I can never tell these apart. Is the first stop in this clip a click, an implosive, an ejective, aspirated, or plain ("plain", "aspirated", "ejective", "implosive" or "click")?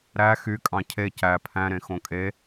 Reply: ejective